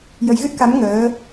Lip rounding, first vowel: unrounded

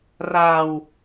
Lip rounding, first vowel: unrounded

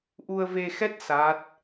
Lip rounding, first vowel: rounded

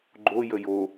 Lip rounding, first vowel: rounded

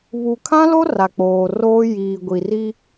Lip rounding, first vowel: rounded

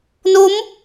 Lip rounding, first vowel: rounded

